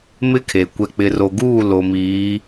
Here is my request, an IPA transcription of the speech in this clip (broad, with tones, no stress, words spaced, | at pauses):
mɪ˦kʰe˨ kʷɛ˨k͡pɪ˨ro˨ɡuː˦˨ lo˨miː˨˦